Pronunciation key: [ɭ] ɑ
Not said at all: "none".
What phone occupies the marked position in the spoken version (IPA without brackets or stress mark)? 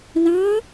l